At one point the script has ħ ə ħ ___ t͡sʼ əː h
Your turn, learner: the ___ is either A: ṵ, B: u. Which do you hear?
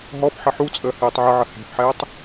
B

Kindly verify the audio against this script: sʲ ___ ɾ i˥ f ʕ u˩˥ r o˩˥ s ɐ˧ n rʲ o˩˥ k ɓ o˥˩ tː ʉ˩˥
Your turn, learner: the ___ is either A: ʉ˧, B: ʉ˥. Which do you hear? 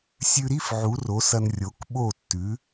A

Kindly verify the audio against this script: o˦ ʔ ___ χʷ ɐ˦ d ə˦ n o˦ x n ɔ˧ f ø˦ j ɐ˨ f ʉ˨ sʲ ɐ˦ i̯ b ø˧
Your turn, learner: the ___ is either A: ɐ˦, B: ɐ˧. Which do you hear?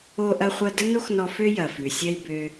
A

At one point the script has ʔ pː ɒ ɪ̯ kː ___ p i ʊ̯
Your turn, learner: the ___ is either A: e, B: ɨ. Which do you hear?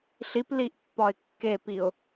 A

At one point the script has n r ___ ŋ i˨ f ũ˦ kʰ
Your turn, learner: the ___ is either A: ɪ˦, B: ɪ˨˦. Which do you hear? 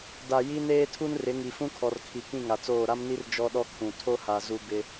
B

